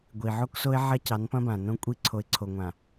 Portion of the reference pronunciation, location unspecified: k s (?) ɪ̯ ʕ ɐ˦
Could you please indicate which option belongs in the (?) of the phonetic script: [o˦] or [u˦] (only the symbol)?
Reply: o˦